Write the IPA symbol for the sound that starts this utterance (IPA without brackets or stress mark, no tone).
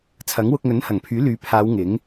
t͡sʰ